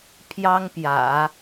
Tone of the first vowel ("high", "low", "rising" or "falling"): high